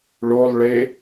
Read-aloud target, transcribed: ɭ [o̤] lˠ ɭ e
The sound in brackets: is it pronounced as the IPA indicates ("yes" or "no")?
no